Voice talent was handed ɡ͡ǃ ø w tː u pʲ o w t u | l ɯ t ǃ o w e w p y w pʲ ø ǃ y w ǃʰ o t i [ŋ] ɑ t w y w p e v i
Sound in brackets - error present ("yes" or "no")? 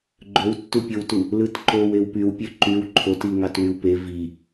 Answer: no